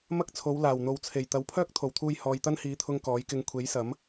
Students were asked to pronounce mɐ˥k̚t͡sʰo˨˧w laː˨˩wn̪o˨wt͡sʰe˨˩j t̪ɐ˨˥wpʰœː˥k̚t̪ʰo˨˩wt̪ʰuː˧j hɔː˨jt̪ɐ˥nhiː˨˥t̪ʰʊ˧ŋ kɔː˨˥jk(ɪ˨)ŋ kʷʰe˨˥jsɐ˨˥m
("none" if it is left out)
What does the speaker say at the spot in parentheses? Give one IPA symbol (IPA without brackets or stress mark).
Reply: ɪ˧